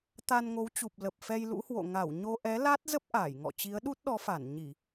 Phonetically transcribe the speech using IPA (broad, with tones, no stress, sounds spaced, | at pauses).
t̪ a˧ n ŋ o˨˦ w t͡ɕ u˨˩ p̚ l ə˨˩ p̚ f ɛ˧ j l ṵ˧˥ h w o̰˧˨ ŋ a˧˩ w ɲ o˧ ʔ ɛ˨˦ l a˦˥ t̚ z ə˦˥ p̚ ʔ aː˧˩ j ŋ ɔ̰˧˨ t͡ɕ i˨˦ ə̯ ɗ u˦˥ t̚ ɗ ɔ˨˦ f a˧˩ n ɲ i˧˩˨